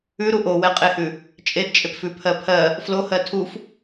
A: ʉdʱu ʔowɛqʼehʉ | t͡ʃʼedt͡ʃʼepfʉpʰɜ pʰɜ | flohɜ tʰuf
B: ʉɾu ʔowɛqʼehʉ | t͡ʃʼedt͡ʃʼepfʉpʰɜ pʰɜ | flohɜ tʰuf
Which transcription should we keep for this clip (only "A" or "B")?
B